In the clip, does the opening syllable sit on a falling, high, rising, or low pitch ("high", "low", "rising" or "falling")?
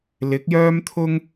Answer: rising